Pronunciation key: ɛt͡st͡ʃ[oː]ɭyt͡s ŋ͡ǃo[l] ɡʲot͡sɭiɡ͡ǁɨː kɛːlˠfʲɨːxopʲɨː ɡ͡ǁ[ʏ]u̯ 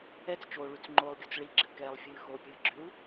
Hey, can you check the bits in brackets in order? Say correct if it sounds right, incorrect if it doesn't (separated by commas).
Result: correct, incorrect, correct